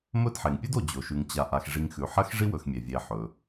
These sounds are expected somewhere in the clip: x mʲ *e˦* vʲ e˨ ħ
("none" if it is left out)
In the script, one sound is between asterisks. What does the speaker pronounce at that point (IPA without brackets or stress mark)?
e˩